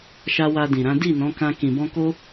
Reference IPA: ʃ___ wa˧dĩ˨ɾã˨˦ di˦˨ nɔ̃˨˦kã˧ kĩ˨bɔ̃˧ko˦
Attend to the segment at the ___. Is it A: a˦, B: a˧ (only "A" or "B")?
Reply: B